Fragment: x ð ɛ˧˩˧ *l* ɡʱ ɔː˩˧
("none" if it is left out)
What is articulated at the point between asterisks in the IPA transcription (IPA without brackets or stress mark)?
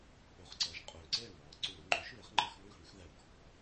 l